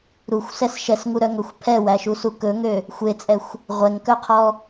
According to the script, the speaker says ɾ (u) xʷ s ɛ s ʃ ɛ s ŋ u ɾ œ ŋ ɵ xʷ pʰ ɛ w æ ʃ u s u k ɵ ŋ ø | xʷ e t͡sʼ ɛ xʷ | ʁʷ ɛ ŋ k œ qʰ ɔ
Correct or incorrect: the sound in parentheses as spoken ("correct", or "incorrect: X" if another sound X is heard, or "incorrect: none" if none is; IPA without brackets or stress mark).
correct